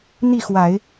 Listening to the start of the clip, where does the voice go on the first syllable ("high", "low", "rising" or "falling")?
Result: falling